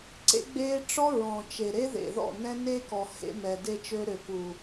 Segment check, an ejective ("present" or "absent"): absent